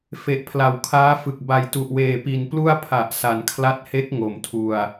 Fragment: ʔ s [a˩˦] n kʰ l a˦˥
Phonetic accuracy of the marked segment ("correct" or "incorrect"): correct